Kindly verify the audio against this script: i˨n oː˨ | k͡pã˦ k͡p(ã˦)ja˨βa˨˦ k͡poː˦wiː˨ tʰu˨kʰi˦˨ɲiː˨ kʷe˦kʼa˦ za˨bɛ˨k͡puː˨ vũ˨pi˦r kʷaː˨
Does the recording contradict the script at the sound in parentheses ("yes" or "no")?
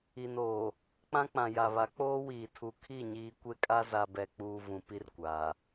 yes